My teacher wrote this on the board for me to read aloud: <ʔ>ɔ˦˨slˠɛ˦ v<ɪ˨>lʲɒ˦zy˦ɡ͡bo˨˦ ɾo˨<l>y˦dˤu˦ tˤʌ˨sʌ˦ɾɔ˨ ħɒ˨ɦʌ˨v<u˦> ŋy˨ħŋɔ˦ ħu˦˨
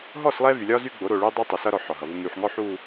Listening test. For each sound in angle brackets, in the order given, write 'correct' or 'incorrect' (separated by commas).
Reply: incorrect, incorrect, incorrect, correct